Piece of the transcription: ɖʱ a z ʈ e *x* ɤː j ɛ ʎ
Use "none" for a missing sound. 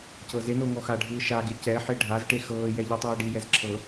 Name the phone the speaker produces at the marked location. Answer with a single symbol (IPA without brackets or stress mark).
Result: x